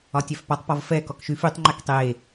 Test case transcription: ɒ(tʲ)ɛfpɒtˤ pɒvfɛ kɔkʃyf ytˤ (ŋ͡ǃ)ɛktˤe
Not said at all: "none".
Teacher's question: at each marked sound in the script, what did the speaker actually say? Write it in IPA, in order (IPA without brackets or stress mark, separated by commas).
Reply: tʲ, ŋ͡ǃ